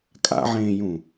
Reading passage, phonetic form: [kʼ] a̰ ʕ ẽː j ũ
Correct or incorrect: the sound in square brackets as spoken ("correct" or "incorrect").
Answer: correct